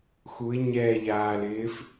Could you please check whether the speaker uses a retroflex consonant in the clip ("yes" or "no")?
no